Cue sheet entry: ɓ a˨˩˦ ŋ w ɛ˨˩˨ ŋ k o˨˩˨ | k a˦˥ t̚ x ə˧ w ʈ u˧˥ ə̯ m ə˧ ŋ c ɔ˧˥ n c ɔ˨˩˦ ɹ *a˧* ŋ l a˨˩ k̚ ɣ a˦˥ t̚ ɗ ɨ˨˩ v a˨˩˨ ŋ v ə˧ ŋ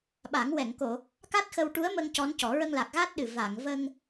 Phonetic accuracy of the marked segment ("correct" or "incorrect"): incorrect